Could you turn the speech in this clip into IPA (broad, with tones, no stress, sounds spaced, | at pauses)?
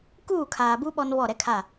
k uː˦˨ kʰ aː˨ b u˦ ɓ ɔ˦ n β ɔ˦˨ ɾ ɛ˦ kʰ a˦˨